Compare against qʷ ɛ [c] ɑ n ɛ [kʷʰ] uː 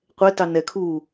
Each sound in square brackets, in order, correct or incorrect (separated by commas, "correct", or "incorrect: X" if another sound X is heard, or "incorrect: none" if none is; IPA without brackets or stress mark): incorrect: t, incorrect: kʰ